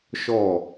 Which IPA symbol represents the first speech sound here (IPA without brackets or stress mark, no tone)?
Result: ʃ